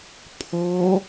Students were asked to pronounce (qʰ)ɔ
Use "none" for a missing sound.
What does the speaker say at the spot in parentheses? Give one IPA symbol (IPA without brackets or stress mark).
pʰ